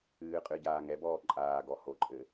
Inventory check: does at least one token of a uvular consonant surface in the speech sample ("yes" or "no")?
yes